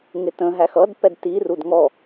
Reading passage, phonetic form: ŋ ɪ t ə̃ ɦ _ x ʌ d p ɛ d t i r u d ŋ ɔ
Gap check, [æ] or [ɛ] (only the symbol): æ